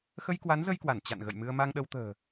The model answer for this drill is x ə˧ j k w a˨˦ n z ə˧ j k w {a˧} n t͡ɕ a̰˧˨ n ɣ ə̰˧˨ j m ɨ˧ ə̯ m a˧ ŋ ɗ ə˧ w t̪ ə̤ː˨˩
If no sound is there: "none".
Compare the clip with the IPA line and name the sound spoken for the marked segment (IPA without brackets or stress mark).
a˧˩